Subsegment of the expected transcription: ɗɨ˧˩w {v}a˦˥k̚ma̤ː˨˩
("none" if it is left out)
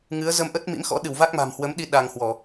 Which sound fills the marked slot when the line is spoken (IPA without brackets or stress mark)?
v